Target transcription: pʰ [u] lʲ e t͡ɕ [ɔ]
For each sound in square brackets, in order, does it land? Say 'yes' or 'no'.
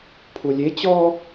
yes, yes

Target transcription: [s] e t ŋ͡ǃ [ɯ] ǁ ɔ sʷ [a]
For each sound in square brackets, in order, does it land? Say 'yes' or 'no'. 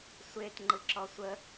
no, yes, no

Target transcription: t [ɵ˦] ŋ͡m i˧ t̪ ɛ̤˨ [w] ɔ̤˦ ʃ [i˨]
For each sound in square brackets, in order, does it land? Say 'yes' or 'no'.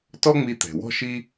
no, yes, no

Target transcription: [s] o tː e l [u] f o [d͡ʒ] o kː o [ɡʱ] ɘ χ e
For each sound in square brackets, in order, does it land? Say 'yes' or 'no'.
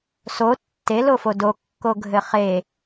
yes, no, no, yes

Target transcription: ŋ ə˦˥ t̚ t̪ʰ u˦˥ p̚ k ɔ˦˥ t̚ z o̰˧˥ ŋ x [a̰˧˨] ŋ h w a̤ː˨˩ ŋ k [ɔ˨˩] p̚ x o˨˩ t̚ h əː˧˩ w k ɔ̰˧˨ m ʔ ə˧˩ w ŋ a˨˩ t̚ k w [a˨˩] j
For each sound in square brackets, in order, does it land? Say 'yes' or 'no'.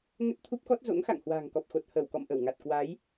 yes, yes, no

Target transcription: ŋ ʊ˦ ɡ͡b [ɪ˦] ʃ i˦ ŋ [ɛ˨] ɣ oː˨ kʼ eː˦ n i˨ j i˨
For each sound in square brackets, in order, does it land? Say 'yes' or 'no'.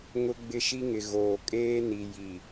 yes, no

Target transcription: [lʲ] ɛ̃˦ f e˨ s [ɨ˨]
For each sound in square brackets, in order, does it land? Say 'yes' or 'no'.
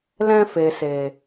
no, no

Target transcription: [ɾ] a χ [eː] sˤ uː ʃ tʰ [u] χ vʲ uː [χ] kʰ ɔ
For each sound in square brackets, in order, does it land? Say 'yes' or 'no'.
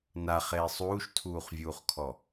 no, yes, no, yes

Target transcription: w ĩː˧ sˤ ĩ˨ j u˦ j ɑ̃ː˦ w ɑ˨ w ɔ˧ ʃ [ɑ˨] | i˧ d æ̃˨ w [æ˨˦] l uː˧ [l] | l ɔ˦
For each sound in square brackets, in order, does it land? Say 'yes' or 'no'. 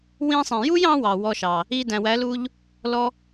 yes, yes, no

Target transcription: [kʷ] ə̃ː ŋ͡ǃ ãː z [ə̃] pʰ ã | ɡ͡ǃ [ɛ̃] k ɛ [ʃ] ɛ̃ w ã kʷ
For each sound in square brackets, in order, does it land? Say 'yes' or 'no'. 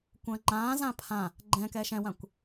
yes, no, yes, yes

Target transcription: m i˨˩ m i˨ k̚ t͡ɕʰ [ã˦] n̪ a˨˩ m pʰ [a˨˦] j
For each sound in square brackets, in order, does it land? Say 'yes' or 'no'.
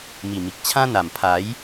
yes, yes

